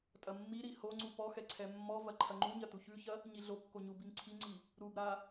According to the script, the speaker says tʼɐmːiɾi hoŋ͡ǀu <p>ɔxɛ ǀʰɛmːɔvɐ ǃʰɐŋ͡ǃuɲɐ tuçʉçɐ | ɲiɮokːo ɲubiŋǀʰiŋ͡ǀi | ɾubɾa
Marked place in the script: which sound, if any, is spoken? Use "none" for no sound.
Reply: p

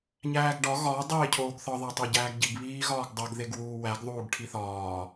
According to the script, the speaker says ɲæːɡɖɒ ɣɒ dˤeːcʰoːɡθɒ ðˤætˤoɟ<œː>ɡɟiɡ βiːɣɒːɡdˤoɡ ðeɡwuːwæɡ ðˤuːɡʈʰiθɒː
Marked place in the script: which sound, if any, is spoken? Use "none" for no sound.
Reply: æː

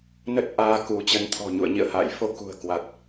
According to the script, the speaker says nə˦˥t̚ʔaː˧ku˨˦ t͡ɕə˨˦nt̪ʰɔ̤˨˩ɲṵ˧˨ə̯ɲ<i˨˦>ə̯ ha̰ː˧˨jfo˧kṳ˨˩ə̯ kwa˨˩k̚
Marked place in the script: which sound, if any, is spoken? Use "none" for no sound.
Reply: ḭ˧˨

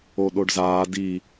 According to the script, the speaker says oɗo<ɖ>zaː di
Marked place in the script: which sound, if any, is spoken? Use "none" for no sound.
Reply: ɖ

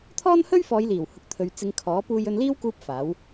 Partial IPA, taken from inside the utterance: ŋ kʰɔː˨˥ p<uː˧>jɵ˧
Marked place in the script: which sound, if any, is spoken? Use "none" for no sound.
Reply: uː˧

